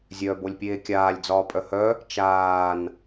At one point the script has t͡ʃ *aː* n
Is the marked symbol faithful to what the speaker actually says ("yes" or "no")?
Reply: yes